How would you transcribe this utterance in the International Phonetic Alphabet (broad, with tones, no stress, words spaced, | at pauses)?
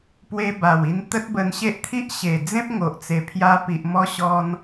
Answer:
pwe˧ba˨˩wi˧n t̪ə˦t̚bə˧nɕe˦ʔt̪ʰi˦ʔ ɕe˨˩d͡zẽ˦p̚ŋo˨ʔt͡se˨˩ pʰja˧pi˨ʔ mɔ˧ɕɔ˧n